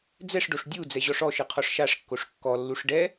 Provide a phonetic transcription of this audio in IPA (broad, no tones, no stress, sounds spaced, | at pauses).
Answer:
d͡z ɛ ʂ ɖ o ʂ dʲ u d͡z ɛ ʑ ɔ ʂ ɔ ʃ ɨ qʰ ɔ ʂ ʃ a ʂ kː o ʂ kː ɔ lː u ʂ ɖ ɛ